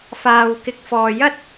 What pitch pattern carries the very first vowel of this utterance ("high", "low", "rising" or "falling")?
low